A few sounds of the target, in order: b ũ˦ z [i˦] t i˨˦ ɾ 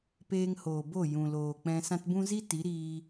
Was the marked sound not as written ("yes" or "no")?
no